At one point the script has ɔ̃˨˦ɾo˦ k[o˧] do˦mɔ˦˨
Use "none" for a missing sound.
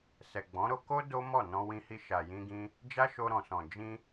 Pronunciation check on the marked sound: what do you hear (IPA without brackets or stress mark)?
o˦